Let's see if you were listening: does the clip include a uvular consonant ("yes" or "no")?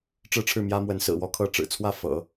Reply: no